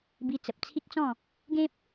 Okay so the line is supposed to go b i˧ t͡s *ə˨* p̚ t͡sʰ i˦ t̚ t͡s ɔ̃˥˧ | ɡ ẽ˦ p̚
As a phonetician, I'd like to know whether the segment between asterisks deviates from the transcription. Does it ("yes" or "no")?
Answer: no